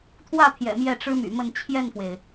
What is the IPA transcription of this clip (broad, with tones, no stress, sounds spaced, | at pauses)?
t̪ʰ w ä˥˩ t̪ʰ j ɛ̰˨˩ m j ɛ˥˩ ʈ͡ʂ ɻ̩˥ m y̰˨˩ m ə˥˧ n t͡ɕʰ j ɛ˥˩ n f w e˩ ɪ̯